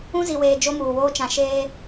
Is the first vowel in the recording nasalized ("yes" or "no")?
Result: yes